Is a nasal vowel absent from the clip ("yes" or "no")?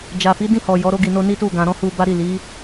no